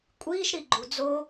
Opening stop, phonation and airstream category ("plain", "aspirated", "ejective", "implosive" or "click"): ejective